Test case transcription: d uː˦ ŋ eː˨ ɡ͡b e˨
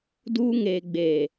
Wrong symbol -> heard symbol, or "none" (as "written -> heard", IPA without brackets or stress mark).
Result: e˨ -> eː˨